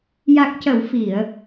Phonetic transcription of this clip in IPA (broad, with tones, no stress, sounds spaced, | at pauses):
j a˨˩ k̚ c ə˨˩˨ w f i˨˩˨ ə̯